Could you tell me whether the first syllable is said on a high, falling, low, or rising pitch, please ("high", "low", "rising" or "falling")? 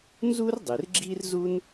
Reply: high